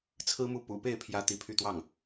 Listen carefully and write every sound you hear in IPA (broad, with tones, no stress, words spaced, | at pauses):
t͡sʰɹ̩˥mu˥˩ pṵ˨˩pe˥˩ɪ̯pʰjä˧˥ t̪i˧˥pʰy˥˧t̪wɑ˥˩ŋ